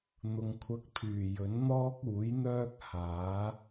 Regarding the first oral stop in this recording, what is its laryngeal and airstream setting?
aspirated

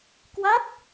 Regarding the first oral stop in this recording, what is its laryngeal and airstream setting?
plain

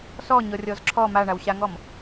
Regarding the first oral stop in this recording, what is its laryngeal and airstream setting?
click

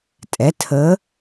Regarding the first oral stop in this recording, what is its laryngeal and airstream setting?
ejective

